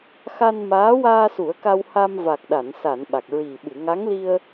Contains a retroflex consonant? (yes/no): no